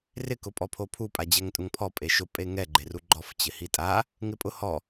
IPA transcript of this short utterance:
r ɪ k ʊ pʼ ɔ pʰ o pʰ u pʼ a d͡ʑ ɛ ŋ tʼ ʊ ŋ pʰ ɔ pʼ e ʃ ʊ pʼ e ŋ ɛ ɡ͡ǃ e r u ɡ͡ǃ ɔ f t͡ɕ ɪ h i tʼ a | ŋ ɪ pʼ ʊ h ɔ

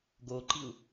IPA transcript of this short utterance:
ɡ o ǃ i u̯

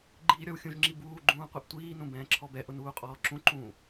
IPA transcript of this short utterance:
ɡ͡ǃ iː ɾʲ ɔ w xʲ ũ ʒ ŋ͡ǁ i b uː ɡ͡ǃ ũː qʷ ɛ ʔ tʷ iː n ũ b ɛ̃ː ǁʰ ɔ b ɛ ʔ ʊ n uː qʼ ɔː ǁ ũ ǃ ũː

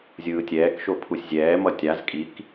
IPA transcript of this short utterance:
zʲ ɯː tʲ ɛː k ʃ o pʰ u sʲ zʲ ɛː m ʌ tʲ a z kʼ i k

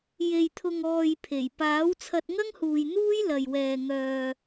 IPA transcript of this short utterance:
j e˨ j t̪ʰ ʊ˨ ŋ ɔː˨ j pʰ e˨˩ j p aː˨˥ w t͡sʰ ɐ˧ t̚ ŋ ɐ˥ ŋ h uː˨ j n̪ uː˥ j l ɐ˨ j w ɛː˨ ŋ œː˨

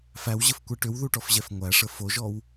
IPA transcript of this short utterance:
f æ w ʑ ə f kʷ ɛ ʈ ʏ w ð u ʈ ɔ f ʑ ɛ f ŋʷ æ ʂ ə f o ʒ ɔ w

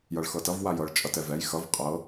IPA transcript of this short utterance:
j ʌ ɭ x ɤ t ʌ v w a j ɤ ɭ t͡ʃʼ ʌ t ɛ v ɛ j x ʌ v qʼ ɤ

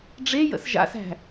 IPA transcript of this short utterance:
ɖ͡ʐ e j ə̰ s ʒ a̰ s æ̤

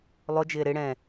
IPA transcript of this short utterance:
lˠ ʊ d͡ʒ ɪː ɾ ɪ ɽ ɛ̃

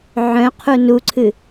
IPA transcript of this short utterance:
ʕ œ̃ qʰ u n u ǀʰ ɨ

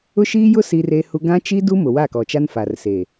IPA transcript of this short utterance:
ʊ˦ ʃ iː˦ j ʊ˦ s i˦ r e˦ h u˦ ɡ ã˦ t͡ʃ i˦ d u˦ m ʊ˨ w a˦˨ k ɔ˨ t͡ʃ a˦ n f a˨ r s e˨

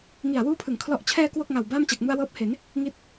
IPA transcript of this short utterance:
ŋ i˨˩ a̯ w uː˦˥ pʰ ɯ˩˦ ŋ kʰ l ɔ˨˩ ʔ t͡ɕʰ ɛː˧ k w o˥˩ k̚ ŋ a˨˩ w b aː˥˩ m t͡ɕ a˨˩ k̚ m u˧ a̯ w ɤː˦˥ p̚ h e˩˦ n | ŋ i˦˥ t̚

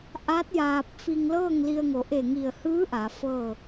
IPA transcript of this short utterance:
ʔ a˧˥ t̚ j aː˧ p̚ f i˧ ŋ l ɤː˥˨ ŋ l i˧ ə̯ ŋ o˩˧ ʔ e˧˩ ŋ i˧˩ ə̯ h ɯː˧˥ ʔ a˩˧ f ɤː˥˨

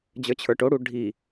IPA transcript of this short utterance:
d͡ʑ ə˞ t͡ɕʰ ə˞ ʈ o ɽ u ɖʱ i

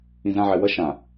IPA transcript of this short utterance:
ĩ z ã ʕ ɛ w ʌ ʃ ã

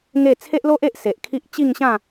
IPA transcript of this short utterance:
ŋ e˥˧ t͡sʰ e˦ ʔ l o˦ ʔ e˦ ʔ s e˨ ʔ kʰ i˦ ʔ t͡ɕ i˥˧ ŋ ɕ ã˥˧

